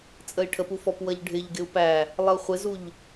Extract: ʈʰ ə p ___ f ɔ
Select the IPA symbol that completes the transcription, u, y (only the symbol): u